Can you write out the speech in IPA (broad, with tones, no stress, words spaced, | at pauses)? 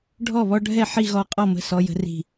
ɖʱɔ˥˨βɔ˦ɖʱɛ˥˨ ħi˥˨ɣɔ˦qʼɔ˥˨ mə̤˥˨ sɔ˦jə̤˦ri̤˥˨